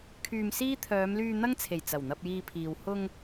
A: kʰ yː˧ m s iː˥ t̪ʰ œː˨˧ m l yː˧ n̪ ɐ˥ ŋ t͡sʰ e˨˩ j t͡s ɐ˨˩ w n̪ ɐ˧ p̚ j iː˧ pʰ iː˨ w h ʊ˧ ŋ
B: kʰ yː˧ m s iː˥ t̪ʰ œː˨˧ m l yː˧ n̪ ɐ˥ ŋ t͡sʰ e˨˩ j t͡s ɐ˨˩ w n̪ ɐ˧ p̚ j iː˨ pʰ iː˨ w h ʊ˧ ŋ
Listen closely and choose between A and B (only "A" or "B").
A